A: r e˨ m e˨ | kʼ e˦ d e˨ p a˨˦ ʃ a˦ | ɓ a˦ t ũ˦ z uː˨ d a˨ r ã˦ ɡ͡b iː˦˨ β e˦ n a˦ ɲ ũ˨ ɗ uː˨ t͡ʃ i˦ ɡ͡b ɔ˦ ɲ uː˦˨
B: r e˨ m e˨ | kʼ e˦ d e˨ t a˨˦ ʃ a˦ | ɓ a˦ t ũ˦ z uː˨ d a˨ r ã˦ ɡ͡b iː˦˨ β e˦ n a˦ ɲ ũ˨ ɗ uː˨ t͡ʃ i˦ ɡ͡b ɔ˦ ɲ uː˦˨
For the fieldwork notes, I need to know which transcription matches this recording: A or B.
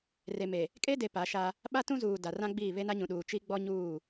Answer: A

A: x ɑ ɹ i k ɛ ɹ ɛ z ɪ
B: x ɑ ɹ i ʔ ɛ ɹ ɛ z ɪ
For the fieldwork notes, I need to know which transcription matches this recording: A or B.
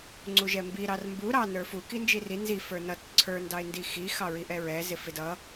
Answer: B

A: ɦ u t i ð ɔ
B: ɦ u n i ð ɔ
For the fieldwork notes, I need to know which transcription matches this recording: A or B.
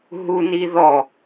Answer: B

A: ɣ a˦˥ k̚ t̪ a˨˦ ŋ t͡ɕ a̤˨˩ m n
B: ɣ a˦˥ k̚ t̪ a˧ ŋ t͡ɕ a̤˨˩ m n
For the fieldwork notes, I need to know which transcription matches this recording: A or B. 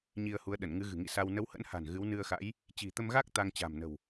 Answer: B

